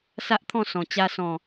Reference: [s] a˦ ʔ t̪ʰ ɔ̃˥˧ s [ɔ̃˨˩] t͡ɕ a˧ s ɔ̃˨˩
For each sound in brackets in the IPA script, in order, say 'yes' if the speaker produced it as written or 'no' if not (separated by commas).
yes, yes